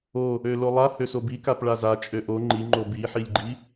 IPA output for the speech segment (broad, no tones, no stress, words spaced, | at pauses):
o | ølolˠa høsobikap ɭaza t͡ʃʼøʔo ŋ͡ǃi ŋ͡ǃobiħilʲɡ͡ǃi